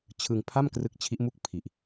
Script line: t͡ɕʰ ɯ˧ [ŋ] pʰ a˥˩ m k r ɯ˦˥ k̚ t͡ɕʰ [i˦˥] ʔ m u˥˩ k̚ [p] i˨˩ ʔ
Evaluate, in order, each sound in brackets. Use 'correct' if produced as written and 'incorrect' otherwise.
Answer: correct, correct, incorrect: pʰ

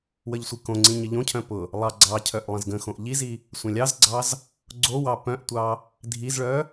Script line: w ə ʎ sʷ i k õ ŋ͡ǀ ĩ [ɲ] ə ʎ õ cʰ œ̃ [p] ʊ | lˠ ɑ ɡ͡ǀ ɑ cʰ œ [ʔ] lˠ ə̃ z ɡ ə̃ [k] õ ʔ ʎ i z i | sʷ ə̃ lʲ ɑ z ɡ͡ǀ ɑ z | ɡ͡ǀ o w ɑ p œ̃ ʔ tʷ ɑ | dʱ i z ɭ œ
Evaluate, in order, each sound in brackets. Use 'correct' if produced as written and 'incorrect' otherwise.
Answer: correct, correct, correct, incorrect: x

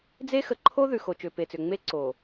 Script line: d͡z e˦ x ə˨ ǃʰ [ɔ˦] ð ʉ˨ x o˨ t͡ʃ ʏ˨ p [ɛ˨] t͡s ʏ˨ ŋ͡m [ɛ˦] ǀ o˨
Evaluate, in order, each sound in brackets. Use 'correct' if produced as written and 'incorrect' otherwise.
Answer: incorrect: o˦, incorrect: e˨, incorrect: e˦

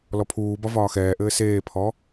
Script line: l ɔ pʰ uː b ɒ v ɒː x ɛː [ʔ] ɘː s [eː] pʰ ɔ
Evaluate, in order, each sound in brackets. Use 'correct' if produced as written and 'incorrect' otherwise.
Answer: correct, correct

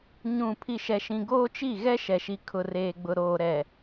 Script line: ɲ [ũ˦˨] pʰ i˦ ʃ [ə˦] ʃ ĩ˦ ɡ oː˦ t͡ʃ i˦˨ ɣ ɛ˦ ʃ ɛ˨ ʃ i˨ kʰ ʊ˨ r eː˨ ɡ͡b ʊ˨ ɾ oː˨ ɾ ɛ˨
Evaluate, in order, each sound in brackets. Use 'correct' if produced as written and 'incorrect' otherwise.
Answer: correct, incorrect: ɛ˦

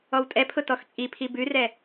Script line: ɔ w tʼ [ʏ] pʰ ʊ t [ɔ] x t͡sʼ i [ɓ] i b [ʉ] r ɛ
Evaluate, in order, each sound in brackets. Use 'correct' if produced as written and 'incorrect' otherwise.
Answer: incorrect: ɛ, correct, incorrect: pʰ, correct

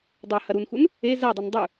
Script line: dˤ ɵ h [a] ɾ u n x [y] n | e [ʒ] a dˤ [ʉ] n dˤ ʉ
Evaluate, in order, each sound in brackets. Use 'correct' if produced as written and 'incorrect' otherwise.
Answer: incorrect: ɐ, incorrect: u, incorrect: z, incorrect: u

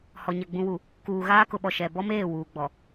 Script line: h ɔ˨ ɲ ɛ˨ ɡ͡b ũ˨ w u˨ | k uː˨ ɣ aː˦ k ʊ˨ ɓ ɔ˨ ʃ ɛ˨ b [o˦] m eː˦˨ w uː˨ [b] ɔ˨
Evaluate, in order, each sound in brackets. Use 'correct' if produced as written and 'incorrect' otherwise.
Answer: incorrect: ɔ˦, incorrect: ɡ͡b

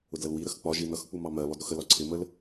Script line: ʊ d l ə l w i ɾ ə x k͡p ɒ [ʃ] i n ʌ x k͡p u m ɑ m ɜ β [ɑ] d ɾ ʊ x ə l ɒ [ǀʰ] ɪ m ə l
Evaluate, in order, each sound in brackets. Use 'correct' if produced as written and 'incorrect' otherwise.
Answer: incorrect: ʒ, incorrect: ɒ, correct

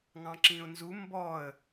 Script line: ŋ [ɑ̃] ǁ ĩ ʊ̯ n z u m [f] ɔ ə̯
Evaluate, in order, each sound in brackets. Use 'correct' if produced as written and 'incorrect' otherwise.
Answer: correct, incorrect: b

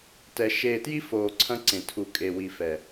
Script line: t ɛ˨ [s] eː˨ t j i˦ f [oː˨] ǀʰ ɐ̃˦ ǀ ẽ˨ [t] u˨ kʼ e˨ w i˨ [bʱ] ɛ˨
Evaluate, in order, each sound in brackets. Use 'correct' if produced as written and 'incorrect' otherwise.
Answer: incorrect: ʃ, correct, incorrect: tʰ, incorrect: f

